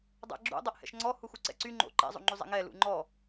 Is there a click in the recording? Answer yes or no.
yes